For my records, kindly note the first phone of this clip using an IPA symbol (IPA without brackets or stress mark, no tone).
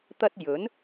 t̪